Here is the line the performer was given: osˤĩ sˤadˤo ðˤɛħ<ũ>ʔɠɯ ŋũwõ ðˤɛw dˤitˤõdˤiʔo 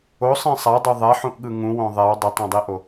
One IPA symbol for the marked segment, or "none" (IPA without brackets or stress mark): ũ